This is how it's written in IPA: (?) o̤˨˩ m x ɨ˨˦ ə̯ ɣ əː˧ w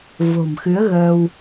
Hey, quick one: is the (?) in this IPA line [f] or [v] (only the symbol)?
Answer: v